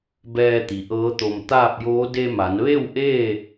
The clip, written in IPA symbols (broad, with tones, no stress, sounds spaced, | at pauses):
b ɛː˧ t̪ i˩ ʔ ɤː˧˥ t̪ o˧ m t̪ aː˥˨ p̚ j oː˧˥ d e˧ m a˩˧ n ʋ e˥˨ w ʔ eː˥˨